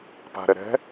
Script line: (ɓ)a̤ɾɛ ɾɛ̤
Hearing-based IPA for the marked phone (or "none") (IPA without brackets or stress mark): p